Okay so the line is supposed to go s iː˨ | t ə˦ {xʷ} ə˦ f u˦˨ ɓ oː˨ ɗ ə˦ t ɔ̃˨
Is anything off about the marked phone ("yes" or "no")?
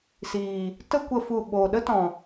yes